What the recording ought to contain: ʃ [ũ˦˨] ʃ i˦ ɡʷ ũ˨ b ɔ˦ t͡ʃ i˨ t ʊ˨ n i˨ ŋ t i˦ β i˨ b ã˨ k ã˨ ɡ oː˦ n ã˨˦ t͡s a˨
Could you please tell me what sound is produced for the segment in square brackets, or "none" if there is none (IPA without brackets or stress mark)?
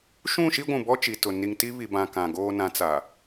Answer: ũ˦˨